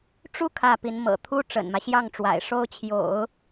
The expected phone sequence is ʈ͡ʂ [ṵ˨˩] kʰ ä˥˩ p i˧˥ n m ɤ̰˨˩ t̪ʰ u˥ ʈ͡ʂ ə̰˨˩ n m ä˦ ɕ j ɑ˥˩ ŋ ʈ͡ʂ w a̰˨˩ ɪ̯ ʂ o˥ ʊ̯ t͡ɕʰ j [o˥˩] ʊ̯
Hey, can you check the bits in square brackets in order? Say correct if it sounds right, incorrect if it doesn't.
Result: incorrect, incorrect

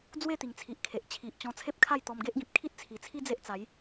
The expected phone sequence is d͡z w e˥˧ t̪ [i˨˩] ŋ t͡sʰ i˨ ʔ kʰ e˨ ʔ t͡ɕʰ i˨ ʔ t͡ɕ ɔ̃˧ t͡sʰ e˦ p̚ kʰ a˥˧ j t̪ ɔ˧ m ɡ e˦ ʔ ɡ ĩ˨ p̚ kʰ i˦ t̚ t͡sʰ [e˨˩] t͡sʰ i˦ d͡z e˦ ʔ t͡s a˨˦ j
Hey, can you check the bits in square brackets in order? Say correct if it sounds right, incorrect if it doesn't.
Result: correct, incorrect

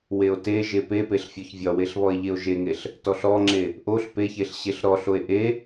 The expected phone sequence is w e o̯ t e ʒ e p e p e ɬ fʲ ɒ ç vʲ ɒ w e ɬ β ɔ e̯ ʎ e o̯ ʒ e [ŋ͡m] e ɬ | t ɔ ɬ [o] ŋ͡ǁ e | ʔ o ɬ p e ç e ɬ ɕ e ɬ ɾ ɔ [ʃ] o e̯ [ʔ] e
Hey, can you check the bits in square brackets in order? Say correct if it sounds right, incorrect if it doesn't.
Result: incorrect, incorrect, incorrect, correct

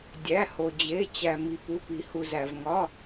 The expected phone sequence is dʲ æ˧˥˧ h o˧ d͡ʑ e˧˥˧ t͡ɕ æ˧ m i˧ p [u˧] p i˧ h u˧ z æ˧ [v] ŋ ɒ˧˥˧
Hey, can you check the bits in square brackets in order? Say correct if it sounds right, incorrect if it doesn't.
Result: incorrect, correct

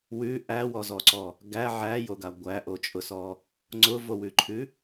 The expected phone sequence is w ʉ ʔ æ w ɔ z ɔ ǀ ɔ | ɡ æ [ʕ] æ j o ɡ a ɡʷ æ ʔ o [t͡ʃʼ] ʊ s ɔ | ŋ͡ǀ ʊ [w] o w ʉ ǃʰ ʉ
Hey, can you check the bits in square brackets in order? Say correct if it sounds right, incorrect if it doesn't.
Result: correct, correct, incorrect

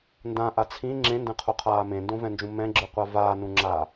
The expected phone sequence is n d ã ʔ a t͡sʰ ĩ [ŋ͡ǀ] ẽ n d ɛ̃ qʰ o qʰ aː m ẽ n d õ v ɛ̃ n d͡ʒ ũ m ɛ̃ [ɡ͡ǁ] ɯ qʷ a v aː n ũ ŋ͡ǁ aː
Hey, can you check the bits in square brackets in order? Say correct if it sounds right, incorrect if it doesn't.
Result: incorrect, correct

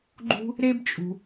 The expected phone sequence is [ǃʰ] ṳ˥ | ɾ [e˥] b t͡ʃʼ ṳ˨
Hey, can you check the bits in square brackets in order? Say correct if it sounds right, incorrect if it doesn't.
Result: incorrect, correct

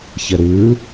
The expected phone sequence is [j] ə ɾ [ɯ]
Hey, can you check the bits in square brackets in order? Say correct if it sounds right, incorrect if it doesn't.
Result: incorrect, correct

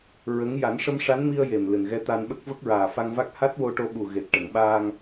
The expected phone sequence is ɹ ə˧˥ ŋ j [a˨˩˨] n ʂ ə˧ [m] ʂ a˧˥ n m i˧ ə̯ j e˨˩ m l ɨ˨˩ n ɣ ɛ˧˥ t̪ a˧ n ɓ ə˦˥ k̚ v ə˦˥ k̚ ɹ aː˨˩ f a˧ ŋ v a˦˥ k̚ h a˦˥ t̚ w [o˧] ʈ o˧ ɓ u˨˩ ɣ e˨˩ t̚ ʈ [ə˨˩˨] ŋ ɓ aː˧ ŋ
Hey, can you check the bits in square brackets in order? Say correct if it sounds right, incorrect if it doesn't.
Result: incorrect, correct, correct, correct

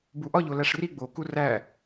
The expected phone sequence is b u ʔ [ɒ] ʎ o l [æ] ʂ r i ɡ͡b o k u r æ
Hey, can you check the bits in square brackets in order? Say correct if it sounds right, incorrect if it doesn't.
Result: correct, correct

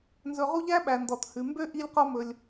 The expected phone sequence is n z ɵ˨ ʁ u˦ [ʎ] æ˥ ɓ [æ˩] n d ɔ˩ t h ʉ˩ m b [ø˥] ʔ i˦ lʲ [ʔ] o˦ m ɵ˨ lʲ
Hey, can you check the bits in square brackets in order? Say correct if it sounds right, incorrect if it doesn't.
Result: correct, correct, correct, incorrect

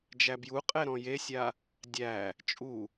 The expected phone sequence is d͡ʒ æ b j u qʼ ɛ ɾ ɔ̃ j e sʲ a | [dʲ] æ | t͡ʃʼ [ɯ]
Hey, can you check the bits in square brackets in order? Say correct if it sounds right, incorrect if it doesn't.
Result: correct, incorrect

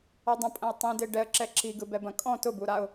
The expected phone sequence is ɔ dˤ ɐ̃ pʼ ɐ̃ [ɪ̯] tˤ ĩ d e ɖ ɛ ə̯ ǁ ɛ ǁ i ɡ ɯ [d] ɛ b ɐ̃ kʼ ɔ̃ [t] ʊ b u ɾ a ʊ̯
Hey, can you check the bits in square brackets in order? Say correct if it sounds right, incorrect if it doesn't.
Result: correct, incorrect, correct

